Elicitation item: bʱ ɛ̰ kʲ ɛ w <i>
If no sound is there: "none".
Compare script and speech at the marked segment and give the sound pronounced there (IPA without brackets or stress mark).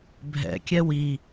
i